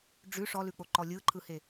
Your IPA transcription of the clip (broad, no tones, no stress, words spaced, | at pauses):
ɖ͡ʐʉ ʂɔlʉk͡poǃɔ lʲɯǃʰɯhe